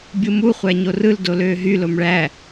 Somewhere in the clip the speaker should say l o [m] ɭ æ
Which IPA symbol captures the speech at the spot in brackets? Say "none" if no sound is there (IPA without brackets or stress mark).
m